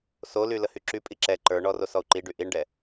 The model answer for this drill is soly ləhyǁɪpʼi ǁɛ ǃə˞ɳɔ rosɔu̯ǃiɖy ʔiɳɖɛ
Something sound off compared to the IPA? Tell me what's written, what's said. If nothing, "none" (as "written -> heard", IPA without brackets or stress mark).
ɪ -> y